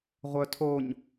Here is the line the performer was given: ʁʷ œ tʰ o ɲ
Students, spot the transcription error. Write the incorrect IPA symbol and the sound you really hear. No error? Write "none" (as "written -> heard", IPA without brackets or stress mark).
none